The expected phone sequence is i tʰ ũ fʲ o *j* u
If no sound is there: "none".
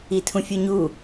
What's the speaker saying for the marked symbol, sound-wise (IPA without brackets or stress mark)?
ɲ